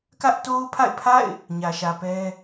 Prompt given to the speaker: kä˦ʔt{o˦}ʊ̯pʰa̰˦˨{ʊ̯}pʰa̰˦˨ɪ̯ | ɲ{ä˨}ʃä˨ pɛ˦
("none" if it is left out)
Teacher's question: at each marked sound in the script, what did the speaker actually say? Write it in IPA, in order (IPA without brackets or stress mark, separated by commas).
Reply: o˦, ɪ̯, ä˨